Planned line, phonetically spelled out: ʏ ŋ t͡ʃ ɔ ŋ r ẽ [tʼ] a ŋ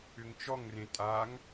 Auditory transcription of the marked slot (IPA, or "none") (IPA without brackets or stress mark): tʼ